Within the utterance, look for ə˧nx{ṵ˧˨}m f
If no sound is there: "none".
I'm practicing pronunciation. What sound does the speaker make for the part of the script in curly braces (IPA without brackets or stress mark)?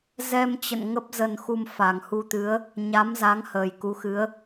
u˧